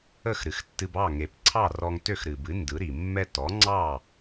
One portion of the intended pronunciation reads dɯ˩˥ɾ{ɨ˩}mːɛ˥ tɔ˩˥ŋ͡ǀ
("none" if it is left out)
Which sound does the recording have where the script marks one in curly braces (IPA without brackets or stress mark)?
i˩